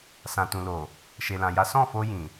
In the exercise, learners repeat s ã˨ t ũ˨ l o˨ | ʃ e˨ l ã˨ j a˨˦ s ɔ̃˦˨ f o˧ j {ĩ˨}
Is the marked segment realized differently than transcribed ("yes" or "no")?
no